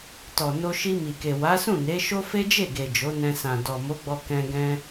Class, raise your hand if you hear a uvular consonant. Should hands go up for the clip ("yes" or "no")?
no